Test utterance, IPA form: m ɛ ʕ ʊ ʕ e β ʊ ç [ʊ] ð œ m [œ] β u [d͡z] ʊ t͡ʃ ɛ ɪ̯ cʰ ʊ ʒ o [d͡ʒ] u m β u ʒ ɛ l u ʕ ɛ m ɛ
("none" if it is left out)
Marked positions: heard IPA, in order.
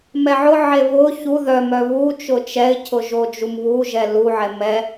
u, œ, t͡ʃ, d͡ʒ

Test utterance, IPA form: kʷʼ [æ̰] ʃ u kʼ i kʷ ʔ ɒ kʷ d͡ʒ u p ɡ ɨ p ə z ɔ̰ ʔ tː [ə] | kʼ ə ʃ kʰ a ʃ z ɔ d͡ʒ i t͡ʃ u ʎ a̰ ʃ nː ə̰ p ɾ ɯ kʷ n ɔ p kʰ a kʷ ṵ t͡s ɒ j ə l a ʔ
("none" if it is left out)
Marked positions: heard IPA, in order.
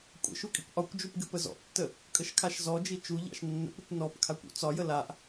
ə̰, ə

